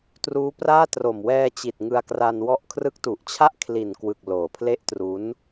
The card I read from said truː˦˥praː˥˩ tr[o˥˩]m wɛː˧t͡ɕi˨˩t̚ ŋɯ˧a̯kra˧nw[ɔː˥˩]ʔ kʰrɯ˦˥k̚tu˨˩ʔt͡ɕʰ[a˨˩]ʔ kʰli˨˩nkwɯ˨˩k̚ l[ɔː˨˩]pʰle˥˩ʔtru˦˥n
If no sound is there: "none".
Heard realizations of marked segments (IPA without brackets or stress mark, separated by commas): o˨˩, ɔ˥˩, a˥˩, oː˨˩